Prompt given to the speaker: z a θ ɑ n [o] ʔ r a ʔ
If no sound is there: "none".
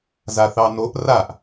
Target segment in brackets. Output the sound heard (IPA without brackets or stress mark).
o